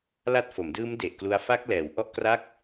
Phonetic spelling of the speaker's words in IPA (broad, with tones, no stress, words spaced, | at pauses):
la˦˥t̚fo˩˦mdɯː˦˥m de˨˩ʔklu˧a̯ fa˦˥k̚lɛː˩˦w ʔɔ˦˥ʔ kra˥˩k̚